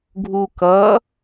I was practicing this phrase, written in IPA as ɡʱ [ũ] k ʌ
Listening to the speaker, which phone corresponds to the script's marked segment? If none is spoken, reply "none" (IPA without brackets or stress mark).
u